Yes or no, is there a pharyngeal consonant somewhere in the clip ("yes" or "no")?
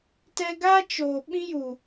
no